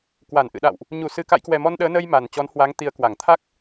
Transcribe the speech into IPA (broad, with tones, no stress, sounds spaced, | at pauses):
k w a˧˩ n ʔ ɨ̰˧˨ ɗ a̰˧˨ w ʔ | ɲ u˧˩ s ɨ˨˩ k a̰˧˨ j k w ɛ˨˩ m ɔ˧ n ɗ əː˨˦ n ə˧ j m a˨˩ n t͡ɕ ɔ˨˦ n h w a˨˦ ŋ t̪ i˨˦ ə̯ k w a˧˩ ŋ t̪ʰ a˦˥ k̚